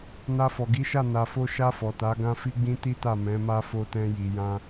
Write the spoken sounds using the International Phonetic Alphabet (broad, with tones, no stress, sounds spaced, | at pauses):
n a˧ f ɔ˨ ɡ i˨˦ ʃ a˦˨ n a˨ f o˧ ʃ a˧ f ɔ˨ t a˨˦ ɡ ã˦ f i˦ ɡ͡b ĩ˦ t i˦ t a˦˨ m ɛ̃˨˦ m a˦ f o˧ t ɛ̃˧ j i˨ j ã˧